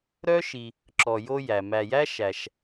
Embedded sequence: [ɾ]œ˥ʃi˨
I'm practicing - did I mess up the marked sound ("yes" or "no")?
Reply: no